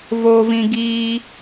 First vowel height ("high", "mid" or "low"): mid